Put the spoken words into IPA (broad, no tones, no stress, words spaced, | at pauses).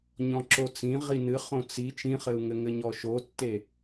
ɲɔ̃ǁot͡sĩ ʁinɨ χõt͡si t͡ʃĩχɘu̯ŋɘ ŋɘɲɔʃotːe